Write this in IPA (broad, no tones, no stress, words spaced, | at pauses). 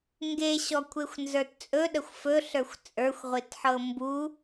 ŋɡeɕɔ kʷʰexʷnzə˞tt͡sʼɵ ɗəxʷfɵɬə˞xʷ t͡sʼə˞xʷʁʷitħɤ mbu